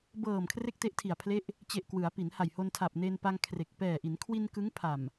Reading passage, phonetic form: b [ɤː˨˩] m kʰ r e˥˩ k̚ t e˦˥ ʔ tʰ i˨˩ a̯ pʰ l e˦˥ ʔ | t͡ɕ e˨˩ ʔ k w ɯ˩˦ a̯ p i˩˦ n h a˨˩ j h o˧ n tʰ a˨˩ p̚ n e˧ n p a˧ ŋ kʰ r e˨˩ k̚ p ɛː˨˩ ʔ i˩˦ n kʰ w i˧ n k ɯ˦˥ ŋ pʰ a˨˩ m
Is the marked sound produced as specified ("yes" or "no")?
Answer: yes